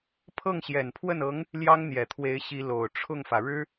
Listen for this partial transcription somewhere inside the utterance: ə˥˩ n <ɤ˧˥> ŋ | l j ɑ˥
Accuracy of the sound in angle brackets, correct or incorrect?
correct